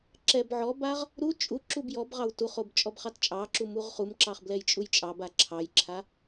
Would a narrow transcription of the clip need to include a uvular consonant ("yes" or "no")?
yes